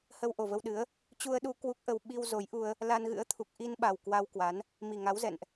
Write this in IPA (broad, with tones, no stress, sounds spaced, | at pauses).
h ə˧ w ʔ o˨˩ v ə˧ w ɗ ɨ˨˦ ə̯ | t͡ɕ u˧ ə̯ ɗ u˧ k w u˦˥ k̚ ʔ ə˧ w ɓ i˧ w z o˨˦ j ʔ u˧ ə̯ | l a˧ n ɣ ɨ̰˧˥ ə̯ t̪ʰ u˨˩ k̚ ʔ i˧ n ɓ a˨˩ w k w a˧ w k w a˨˦ n | m i˨˩ ŋ a˨˦ w z ɛ̰˧˨ n ʔ